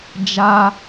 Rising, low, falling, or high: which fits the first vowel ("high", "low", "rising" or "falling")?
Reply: high